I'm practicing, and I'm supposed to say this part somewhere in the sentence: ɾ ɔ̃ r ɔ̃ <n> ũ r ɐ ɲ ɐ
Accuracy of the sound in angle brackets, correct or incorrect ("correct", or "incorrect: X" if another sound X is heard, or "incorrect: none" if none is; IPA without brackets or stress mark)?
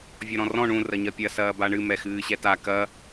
incorrect: ɳ